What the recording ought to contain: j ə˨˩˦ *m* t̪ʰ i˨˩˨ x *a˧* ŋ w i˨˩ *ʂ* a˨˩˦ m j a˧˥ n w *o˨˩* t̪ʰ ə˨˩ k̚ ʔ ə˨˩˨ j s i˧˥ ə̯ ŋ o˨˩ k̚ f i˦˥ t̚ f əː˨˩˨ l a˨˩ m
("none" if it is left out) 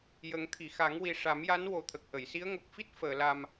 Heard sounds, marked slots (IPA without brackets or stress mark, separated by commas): ŋ, a˨˩˦, ʂ, o˨˩